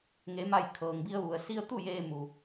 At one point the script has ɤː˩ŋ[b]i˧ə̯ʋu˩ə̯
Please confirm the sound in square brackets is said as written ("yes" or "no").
yes